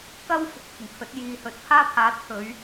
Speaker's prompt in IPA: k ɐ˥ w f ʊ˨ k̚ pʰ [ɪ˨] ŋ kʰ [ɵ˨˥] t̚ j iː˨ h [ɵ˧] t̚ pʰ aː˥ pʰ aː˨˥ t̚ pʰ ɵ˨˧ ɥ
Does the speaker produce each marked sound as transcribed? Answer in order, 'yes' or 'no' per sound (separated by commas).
no, yes, no